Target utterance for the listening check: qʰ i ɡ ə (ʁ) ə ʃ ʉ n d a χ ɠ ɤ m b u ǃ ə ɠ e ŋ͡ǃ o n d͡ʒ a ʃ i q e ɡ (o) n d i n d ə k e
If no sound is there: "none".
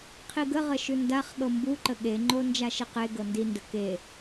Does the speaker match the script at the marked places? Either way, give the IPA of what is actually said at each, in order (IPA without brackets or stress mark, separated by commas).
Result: ʁ, ɤ